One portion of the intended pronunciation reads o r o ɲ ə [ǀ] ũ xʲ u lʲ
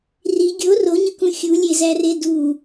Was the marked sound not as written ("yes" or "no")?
yes